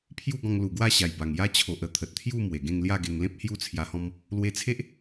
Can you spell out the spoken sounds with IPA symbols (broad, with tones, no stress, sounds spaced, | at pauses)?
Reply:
pʰ j u˥˧ ɡ ɔ̃˧ ŋ l u˨˩ ɡ w a˥˧ ɕ a˨˩ j b a˨˩ ŋ j a˦ t͡ɕʰ o˨ ʔ ə˧ t̪ʰ ə˨ t̚ t̪ʰ j u˥˧ m w e˨˩ ɡ ẽ˥˧ ŋ l j a˥˧ ɡ e˧ ŋ l ẽ˦ p̚ h j u˦ t͡sʰ j a˧ h ɔ̃˦ m | l w e˧ t͡sʰ e˦ ʔ